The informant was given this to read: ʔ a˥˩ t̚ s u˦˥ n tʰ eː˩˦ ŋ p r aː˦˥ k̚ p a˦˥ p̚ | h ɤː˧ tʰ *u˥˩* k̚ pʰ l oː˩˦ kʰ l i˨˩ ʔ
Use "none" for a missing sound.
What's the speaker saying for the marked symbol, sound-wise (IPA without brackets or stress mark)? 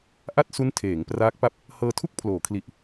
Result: u˥˩